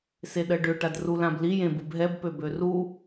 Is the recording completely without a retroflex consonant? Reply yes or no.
no